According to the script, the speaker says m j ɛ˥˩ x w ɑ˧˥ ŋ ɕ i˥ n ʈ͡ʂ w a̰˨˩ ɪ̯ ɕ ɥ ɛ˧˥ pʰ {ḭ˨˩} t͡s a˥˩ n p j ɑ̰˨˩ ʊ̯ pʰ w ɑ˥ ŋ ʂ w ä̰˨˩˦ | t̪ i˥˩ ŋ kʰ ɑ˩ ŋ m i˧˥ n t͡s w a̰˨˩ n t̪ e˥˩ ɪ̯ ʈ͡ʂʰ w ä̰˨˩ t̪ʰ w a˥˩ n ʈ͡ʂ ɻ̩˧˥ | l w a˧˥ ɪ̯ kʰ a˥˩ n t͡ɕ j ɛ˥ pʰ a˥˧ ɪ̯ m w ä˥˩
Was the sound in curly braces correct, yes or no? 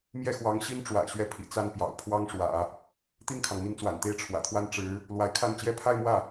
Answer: yes